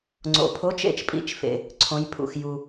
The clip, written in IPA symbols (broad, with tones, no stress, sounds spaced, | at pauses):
ŋ͡ǀ o̰˨ pʰ o˧˥˧ t͡ʃ ḛ˥˩ t͡ʃ pʼ ḭ˥˩ t͡ʃ f ḛ˨ | ǀʰ õ˨˦ j pʰ ṵ˨ x j u˨